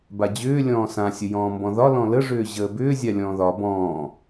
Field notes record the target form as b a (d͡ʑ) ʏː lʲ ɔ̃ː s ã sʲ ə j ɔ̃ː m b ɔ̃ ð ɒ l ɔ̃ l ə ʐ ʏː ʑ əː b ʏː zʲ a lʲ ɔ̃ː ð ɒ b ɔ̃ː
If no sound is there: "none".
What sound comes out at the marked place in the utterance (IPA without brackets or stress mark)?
d͡ʑ